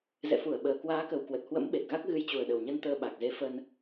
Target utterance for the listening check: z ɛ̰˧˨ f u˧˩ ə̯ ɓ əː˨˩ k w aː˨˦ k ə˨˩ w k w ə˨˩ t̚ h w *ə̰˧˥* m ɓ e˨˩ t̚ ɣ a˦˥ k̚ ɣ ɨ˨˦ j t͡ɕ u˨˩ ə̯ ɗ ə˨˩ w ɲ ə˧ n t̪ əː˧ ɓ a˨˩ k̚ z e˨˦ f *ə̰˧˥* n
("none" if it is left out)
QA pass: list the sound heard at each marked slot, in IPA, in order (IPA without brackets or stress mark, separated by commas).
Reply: ə̰˧˥, ə˧